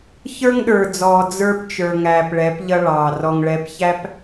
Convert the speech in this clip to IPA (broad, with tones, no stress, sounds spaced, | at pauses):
ç ə˞˦ ŋ ɗ ə˞˨ d͡z ɔː˨ d͡z ə˞˦ p t͡ʃ ə˞˨ ŋ æː˨ p ɭ ɛ˨˦ p ʎ ʌ˦ ɭ ɑː˨ r ɔ˨ ŋ ɭ ɛ˨˦ p ç æ˦ p